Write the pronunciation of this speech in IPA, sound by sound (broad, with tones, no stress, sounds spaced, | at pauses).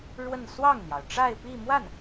ɻ w ə˥˧ n s w ɑ˥˩ ŋ n̪ j ɑ˩ ʊ̯ ʈ͡ʂ a˥˧ ɪ̯ p i˥˧ m w a˥˩ n